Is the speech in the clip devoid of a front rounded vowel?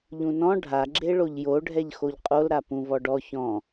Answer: yes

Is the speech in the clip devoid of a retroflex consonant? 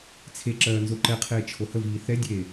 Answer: yes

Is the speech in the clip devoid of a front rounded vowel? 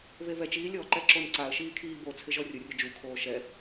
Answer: yes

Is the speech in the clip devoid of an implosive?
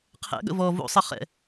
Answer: no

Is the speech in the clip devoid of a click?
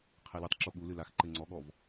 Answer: no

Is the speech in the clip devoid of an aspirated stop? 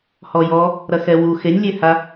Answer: yes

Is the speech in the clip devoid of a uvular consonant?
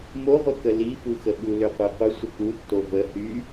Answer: no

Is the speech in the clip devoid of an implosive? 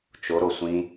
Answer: yes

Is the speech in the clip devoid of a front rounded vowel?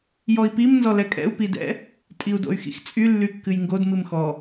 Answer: no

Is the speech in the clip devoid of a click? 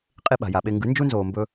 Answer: yes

